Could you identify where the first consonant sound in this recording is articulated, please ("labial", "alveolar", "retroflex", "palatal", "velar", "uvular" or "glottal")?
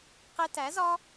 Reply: uvular